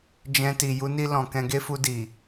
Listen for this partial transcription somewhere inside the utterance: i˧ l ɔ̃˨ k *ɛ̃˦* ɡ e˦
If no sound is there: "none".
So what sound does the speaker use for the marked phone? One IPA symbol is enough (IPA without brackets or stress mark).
ɛ̃˧